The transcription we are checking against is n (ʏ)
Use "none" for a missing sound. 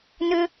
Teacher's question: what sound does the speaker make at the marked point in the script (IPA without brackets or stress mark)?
ʏ